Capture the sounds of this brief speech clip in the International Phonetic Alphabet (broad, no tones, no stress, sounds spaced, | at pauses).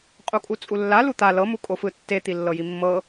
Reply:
qʼ u kʼ u t͡sʼ u lː a l u t̪ a l ɤ m u kʼ o f ɯ tː e t̪ i lː ɤ j i mː ɤ